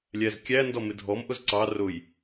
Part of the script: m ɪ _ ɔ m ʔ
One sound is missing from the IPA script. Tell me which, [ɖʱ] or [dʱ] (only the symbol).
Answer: dʱ